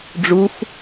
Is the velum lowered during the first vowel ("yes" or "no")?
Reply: no